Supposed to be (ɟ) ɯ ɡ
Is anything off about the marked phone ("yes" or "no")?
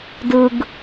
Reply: yes